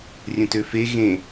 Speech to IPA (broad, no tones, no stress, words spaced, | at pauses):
rʲə̃tøfe ɣẽ